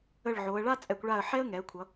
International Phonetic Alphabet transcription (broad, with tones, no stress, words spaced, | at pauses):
ə˧˩ɭ ʕo˩˧ə̯ɭa˥ t͡sʼɛ˩˧kʷɭa˧˩ə̯ ħɛ˥ə̯ŋɛ˩˧ə̯kʷʰʌ˩˧